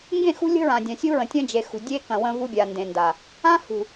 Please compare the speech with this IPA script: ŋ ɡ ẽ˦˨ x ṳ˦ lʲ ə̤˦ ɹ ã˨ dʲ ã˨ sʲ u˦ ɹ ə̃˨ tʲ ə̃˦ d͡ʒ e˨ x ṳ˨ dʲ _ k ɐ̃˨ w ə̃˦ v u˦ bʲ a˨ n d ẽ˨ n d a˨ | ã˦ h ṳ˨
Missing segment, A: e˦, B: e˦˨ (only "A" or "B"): A